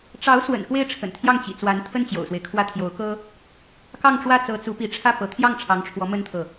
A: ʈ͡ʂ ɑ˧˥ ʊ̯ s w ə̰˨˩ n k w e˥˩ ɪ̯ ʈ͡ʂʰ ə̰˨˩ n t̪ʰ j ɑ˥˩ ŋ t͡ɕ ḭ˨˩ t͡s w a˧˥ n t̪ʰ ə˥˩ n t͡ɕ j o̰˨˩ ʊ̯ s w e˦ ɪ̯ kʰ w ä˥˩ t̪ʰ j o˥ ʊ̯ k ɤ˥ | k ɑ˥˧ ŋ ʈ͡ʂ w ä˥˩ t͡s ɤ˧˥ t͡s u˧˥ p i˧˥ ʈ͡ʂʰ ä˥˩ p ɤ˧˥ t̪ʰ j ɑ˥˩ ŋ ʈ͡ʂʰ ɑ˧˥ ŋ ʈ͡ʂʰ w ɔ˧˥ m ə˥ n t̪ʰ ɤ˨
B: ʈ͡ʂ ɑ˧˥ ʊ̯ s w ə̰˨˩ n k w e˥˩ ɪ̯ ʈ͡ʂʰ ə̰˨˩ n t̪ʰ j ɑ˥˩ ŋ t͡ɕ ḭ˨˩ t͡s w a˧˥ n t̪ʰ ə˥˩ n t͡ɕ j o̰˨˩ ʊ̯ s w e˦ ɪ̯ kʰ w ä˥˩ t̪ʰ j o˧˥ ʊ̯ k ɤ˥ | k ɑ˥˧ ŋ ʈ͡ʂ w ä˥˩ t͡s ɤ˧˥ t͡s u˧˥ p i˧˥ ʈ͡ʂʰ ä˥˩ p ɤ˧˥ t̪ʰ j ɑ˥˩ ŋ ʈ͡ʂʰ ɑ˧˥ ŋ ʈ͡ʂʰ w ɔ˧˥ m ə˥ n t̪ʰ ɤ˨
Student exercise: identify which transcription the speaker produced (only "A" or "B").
B